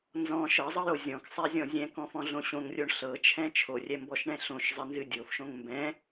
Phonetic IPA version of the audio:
nzɔ̃ ʃɤzˤɤjo zʲɔ̃ksˤɛzʲɔ̃ zʲɛ̃kɔ̃fɔ̃ɮõ ɕõŋrʲoɳ ɬɤt͡ʃʰɛ̃ t͡ʃʰorʲɛmbɔʃɳɛ̃ ɬõʃzˤɘnzɨ dʲofʃõŋ mbɛ̃

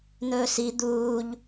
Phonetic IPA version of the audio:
n̪ɵːsi d̪uːʎ

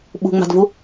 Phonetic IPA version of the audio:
ɓṳŋ͡ma̤dvu

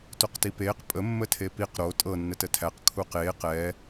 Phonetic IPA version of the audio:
toqtipeːq pʼə mːətʰepiq ɾo tʼɤ nːətətʰæq kʰuqeːq ɛ

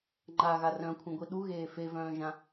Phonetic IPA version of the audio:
ŋ͡ǃaɣa rœ̃kʷʰĩɡʷi ɗuɣeː fevœ̃ːʒã

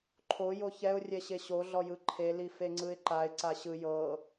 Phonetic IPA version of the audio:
ǃʰo joçɛʊ̯rʲɛɕe ɕoɮɔ jɯǃʰeli feŋ͡ǀɯɪ̯ǃaɪ̯ ǀaɕɯ jɤ

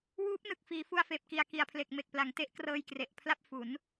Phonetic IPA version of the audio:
wuː˦˥p̚nɯ˨˩k̚ fiː˩˦fu˧a̯feː˨˩p̚ki˨˩a̯ ki˨˩a̯pʰle˨˩k̚me˨˩k̚pla˩˦ŋ te˦˥ʔ krɤː˧jkre˨˩ʔpʰla˥˩p̚ fu˩˦n

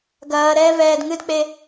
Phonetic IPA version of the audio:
ɡɐːɾɛː vɛːdŋɨdk͡pe

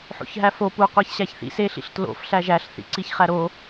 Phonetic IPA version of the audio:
ħo̰çɦæfo pu qʷæçɕæçθḭ se ɬḭɬtlo̰f ɬæʒæɬ θḭǀiçχæɾo

